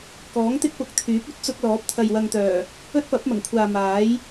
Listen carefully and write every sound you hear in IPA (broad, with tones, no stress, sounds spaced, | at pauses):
k ɔː˨˥ ŋ t̪ ɪ˥ k̚ p ʊ˨˥ k̚ t̪ʰ yː˨˥ p̚ ɵ˥ t̚ t͡s ʊ˧ k̚ l ɔː˨˥ p̚ t̪ʰ ɐ˨ j w ɐ˨ ŋ t̪ œː˨˩ | ɵ˥ t̚ p ɐ˨˥ p̚ m ɐ˨˩ ŋ kʷʰ aː˨ m aː˨˥ j